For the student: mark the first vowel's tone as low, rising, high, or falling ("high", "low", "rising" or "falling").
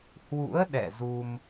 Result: rising